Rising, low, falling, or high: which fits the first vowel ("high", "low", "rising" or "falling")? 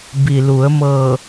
low